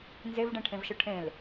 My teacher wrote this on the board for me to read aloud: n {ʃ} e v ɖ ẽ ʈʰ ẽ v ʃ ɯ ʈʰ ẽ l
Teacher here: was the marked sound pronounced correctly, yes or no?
no